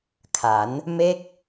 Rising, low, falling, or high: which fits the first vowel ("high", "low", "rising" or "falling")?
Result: rising